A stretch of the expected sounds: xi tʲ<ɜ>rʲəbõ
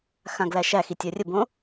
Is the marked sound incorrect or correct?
correct